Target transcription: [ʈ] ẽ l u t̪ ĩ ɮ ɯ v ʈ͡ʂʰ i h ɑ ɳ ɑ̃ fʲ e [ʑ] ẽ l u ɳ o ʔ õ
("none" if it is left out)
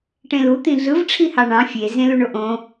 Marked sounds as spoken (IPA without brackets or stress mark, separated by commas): ʈ, z